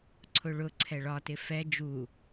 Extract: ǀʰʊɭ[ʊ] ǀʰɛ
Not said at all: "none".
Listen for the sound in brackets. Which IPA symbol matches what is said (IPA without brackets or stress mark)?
ʊ